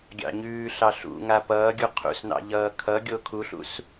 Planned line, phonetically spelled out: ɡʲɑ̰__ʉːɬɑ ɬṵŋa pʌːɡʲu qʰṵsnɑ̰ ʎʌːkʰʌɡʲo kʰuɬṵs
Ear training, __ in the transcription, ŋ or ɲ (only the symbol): ɲ